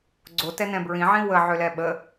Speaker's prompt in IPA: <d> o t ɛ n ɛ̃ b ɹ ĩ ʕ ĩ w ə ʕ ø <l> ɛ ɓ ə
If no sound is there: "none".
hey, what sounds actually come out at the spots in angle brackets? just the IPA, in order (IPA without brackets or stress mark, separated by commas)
ɡ͡ǀ, l